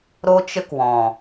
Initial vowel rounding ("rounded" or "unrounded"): rounded